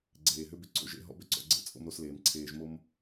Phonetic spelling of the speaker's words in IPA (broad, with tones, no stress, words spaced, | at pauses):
ɡ͡ǀeː˨ɦʏ˨˦bʏ˨ ǀo̰˨ʒḛ˨ ɦɔ̰˦bʏ˦˨ǀɔ̰˨ ɡ͡ǀḛ˦t͡sʼo̰˦mɾo˦sleː˨m ǀʰeː˨ʒmo˦m